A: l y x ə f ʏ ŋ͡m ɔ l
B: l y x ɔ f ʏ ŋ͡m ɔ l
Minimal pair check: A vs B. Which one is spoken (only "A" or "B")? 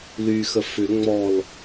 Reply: A